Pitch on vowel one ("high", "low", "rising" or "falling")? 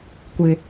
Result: low